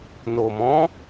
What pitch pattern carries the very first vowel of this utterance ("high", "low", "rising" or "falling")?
low